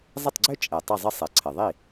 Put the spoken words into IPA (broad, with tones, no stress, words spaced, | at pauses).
zˤɪ˥˩tˤɡ͡ǀø˥ t͡ʃʼɛ˩ tˤə˥˩zˤə˥ sˤe˩ǀʰɘ˩ ðˤi˥˩